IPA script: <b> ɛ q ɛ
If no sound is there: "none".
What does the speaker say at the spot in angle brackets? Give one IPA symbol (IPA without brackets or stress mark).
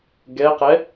ɡ